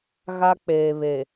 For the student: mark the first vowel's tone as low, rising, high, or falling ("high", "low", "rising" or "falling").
high